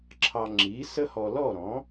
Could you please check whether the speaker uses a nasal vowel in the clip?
yes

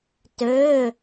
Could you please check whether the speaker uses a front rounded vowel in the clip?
yes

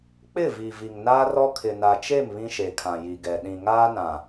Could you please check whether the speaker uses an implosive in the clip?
yes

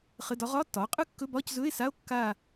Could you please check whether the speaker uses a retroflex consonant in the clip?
no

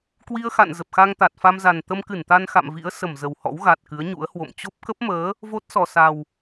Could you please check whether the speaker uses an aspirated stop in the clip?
no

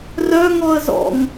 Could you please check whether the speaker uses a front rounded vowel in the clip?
yes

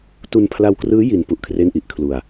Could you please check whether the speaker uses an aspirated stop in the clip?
yes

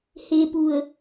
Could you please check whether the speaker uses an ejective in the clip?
no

